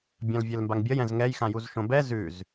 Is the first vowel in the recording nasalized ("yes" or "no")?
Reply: yes